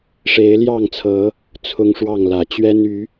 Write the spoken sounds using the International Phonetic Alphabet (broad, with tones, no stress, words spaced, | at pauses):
ʂe˨˦ɪ̯ljɑ˥˨ŋt͡sʰɤ˨˦ | t͡sʰʊ˦ŋʂwɑ˥˨ŋlä˨˩ t͡ɕɥɛ˦ny˨˦